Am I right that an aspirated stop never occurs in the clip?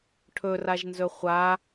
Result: no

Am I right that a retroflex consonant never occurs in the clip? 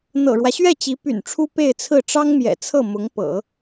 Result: no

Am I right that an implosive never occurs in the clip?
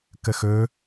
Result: yes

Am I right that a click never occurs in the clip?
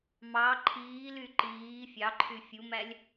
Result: no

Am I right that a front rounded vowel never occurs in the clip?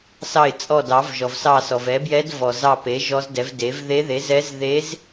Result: yes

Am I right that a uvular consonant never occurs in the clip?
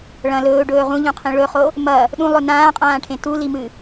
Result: no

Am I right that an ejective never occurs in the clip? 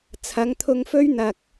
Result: yes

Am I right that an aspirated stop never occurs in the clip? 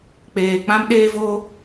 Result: yes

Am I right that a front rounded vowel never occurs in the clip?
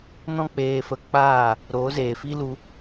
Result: yes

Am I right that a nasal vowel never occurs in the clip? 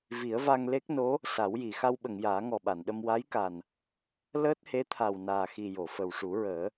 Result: yes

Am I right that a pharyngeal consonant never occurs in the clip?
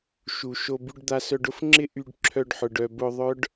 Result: no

